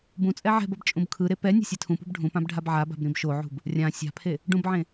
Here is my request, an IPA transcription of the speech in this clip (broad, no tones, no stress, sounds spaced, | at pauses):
b ũ t͡sʼ ɛ ʕ ɛ̤ b ʌ b t͡ʃʼ ũ b kʰ ɯ ɾ e p ɛ nʲ ɛ̤ sʲ ɛ tʰ ũ p ṳ b ɖʱ ũ p ã b ɖʱ a b ʕ a b a̤ b ɾ ĩ b ʃ o ʕ ṳ b | rʲ ã sʲ a̤ pʰ e | ɖ ũ b ʕ ẽ